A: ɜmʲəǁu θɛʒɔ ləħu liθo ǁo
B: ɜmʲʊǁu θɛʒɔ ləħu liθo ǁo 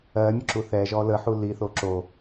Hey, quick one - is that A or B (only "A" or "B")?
B